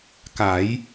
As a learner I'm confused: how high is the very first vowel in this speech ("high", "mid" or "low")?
low